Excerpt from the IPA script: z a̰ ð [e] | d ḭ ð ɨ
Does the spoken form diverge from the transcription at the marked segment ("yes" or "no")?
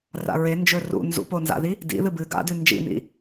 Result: yes